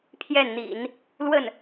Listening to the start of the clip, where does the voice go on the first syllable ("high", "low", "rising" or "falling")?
falling